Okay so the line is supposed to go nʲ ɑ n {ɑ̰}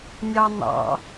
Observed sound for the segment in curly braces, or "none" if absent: ɑ̰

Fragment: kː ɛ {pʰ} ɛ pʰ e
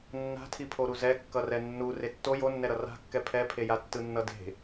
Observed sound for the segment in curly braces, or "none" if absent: pʰ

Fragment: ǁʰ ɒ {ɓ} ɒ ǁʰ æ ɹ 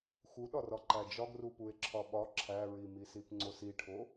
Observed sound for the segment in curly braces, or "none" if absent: ɓ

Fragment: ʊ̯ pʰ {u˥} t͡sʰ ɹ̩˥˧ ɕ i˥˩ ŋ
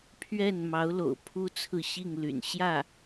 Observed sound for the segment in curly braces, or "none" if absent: u˥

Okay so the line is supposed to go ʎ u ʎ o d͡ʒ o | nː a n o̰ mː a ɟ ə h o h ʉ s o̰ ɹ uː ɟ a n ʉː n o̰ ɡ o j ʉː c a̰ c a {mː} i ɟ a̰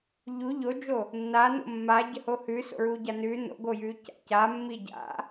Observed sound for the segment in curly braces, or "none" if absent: mː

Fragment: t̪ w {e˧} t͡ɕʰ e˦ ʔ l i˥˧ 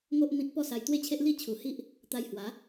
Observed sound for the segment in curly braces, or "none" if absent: e˦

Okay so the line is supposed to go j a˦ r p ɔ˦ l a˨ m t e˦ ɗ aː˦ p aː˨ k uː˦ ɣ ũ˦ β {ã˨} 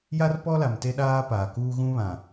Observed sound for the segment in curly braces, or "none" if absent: ã˨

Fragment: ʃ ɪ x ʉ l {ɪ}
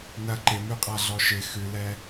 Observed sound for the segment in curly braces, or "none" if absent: ɛ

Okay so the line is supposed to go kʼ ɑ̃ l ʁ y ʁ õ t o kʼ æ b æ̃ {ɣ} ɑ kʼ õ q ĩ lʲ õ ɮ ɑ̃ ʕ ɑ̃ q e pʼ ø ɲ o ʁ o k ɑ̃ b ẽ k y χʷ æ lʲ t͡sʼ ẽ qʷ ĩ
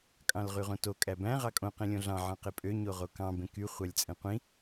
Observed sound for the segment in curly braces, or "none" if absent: ʁ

